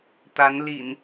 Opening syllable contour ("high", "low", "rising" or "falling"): rising